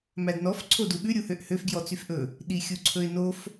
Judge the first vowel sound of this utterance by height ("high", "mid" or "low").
low